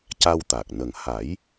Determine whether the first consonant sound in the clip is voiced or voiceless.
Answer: voiceless